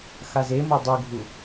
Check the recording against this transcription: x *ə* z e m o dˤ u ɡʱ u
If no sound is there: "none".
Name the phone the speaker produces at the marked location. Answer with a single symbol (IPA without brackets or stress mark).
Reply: a